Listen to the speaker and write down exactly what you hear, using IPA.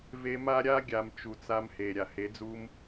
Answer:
v e˧ m a˦ ɾʲ a˦ ɡʲ a˨ m t͡ʃ u˨ t͡s a˧ m h e˨ ɾʲ a˨ h e˨˦ d͡z u˦ m

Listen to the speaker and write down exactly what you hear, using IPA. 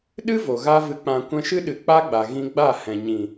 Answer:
ɗ ɨ˦ v o˨ ɣ a˦ v ɨ˧ k͡p ã˧ kʷ ɛ̃˧ ʃ ɨ˦ ɗ ɨ˨ k͡p a˦ ɡ͡b a˨ ɣ ĩ˧ ɡ͡b a˦˨ h ɛ̃˨ ɲ ĩ˨

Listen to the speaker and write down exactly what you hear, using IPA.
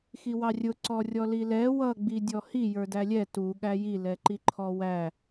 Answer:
x i w ɑ rʲ ʊ ǀ ɔ rʲ ɔ l i l ɛ w ʌ ɡ͡b i dʲ ɔ h i j ə˞ d æ lʲ ɛ t u ɠ æ j i l ɛ ǃ i ǃʰ ɔ w æ

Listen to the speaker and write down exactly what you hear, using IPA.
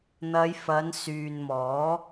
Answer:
n̪ ɐ˨˧ j f ɐ˨˧ n s yː˨ n m ɔː˨˥

